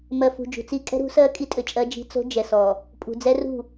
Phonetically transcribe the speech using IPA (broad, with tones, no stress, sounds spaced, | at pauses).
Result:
m ɜ˨ f ṳ˨ d͡ʒ ṳ˨ t͡s i˦ kʼ ɛ̤˦ ɾ ṳ˨˦ s ɜ˦ kʼ i˦ tʼ ɘ˨ t͡ʃʼ ɜ˦ d͡ʒ i̤˦ t͡s o̤˦ d͡ʒ ɛ˨ s ɔ˨ | pʼ ṳ˨ d͡z ɛ˦ r ṳ˦˨